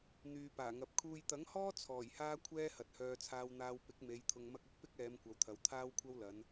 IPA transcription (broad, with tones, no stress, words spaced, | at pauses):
n̪yː˨paː˨˩ŋɐ˨p̚ kʰuː˨jt̪ɐ˨˥ŋhɔː˥ t͡sʰɔː˨˩jhaː˥kʷʰɛː˥ hɐ˨t̚hœː˧ t͡sʰaː˧wn̪aː˧w pɪ˨˥k̚me˨˧j t̪ʰʊ˧ŋmɐ˥k̚ ʊ˥k̚ pɪ˥k̚ɛː˨˧m kʷɐ˨˧wt̪ʰɐ˨˧w t̪ʰaː˥wkʷʰɐ˥wlɐ˨˧n